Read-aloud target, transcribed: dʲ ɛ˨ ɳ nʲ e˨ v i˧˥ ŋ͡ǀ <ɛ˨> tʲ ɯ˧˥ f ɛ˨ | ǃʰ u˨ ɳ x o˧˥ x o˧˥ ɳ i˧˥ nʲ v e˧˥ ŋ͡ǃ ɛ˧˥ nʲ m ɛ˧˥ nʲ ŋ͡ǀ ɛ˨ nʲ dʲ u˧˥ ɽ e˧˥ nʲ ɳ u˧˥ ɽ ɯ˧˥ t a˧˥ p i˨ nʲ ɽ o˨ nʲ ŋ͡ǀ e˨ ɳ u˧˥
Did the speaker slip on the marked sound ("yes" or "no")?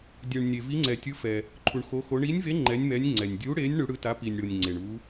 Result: no